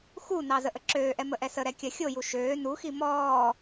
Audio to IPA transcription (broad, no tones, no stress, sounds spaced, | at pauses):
x u n ɑ z ə ʔ ə ǁ øː ʔ ɛ m ə ʔ ɛ s ə ɾ ɛ kʲ ɐ xʲ o j u ʃ øː n u x i m ɔː